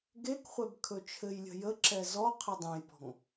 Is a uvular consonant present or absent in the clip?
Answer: present